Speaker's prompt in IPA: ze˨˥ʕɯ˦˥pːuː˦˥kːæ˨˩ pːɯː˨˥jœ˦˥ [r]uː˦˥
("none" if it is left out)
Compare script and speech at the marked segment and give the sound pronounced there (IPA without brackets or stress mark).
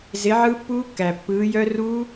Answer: r